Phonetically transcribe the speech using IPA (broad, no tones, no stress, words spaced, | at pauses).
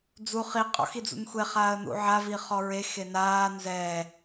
d͡zu χi qʼɔ̰xid͡zṵnxʷe χaːə̯nṵʕav iχɔɹe xenaː nzɛː